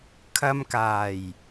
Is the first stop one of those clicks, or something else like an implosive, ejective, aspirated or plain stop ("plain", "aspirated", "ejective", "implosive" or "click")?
aspirated